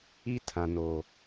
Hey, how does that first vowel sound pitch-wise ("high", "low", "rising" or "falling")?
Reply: high